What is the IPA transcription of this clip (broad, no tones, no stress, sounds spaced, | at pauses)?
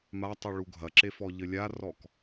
m a tˤ u ɭ u ɡʱ ɐ ǁ e f ɔ ʎ ɘ lʲ a r ɔ k